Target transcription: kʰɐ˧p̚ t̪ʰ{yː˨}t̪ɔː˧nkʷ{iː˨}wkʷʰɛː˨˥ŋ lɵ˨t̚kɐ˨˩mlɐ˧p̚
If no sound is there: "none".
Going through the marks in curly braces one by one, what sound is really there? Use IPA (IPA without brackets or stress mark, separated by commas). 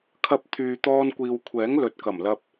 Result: yː˨, iː˨